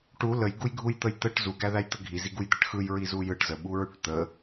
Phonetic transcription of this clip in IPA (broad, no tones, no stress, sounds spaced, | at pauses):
ʈ u l ə j ɡ u j ɡʱ u j t̪ ə j t̪ ə ʈ z u ɡ æ ð æ j t̪ ə ɡʱ i z i ɡ u j d̪ ə ʈ x ɯ j ɹ i z u j ɯ ʈ z ə ɓ u ɹ y ʈ t̪ ə